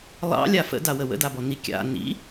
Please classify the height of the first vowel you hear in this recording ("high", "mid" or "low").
low